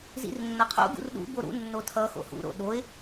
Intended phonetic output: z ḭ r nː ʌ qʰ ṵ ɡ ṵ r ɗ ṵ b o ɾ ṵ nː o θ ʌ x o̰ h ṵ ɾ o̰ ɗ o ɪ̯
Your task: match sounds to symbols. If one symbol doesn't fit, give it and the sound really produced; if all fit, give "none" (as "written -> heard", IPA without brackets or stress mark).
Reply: θ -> tʰ